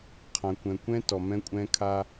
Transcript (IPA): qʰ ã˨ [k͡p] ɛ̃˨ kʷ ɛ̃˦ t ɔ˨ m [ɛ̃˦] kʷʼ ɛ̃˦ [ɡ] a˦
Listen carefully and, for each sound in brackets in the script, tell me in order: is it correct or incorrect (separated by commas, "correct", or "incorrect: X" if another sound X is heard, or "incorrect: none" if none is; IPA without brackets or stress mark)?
incorrect: kʷ, correct, incorrect: kʰ